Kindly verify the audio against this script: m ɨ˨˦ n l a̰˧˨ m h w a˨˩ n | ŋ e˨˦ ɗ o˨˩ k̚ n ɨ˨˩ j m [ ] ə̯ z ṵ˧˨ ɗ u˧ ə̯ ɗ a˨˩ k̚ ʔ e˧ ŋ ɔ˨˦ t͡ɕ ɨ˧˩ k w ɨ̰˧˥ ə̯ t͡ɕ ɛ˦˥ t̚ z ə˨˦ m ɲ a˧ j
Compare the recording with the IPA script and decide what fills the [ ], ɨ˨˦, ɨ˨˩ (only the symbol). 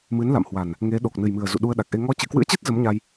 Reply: ɨ˨˩